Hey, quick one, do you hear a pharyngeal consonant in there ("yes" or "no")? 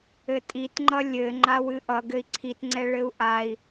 no